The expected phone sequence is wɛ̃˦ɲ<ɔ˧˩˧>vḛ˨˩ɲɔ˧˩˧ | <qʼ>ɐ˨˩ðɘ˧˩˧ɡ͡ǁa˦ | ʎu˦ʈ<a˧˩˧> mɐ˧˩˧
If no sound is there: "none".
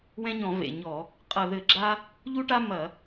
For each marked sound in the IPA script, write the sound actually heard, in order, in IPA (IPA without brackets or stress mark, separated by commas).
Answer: ɔ̃˧˩˧, qʼ, a˦